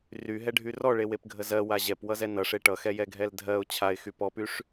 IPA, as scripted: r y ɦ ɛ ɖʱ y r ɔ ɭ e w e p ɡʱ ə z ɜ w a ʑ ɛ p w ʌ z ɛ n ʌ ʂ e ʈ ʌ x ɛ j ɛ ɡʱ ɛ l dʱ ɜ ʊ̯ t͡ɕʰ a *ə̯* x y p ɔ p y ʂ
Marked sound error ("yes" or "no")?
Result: yes